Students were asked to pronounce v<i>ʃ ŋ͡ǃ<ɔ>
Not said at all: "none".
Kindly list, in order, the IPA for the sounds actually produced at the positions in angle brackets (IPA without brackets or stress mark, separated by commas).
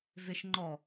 ɪ, ɔ